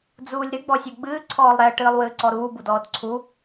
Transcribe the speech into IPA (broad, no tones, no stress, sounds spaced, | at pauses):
d͡z uː lʲ ɾ ɨ ɡ͡b ɔ sʲ o ɡ͡b ɨː ǀʰ ɔː lˠ ɾ ɛ ə̯ ʈ ɨː lˠ w ɨː ǀ ɔ ɾ uː b u d ɔː d ǀʰ u